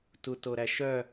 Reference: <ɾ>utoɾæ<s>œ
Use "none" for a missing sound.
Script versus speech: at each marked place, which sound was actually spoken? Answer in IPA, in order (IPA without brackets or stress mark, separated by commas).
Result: t, ʃ